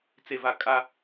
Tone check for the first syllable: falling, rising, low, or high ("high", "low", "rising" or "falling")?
low